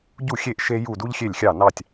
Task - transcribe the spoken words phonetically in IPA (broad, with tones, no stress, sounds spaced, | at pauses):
ɟ u˧˩ xʲ e˧˩ ʔ ʃ e˧ j u˧˩ d u˧ ʎ xʲ e˧˩ lʲ xʲ ɑ˧˩ n ɑ˧˩ tʲ